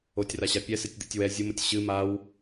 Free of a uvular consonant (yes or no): yes